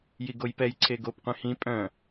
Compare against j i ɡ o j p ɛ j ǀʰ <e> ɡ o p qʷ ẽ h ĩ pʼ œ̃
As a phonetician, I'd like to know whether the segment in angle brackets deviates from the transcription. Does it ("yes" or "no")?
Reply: no